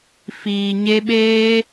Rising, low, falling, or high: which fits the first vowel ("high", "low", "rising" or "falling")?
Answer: low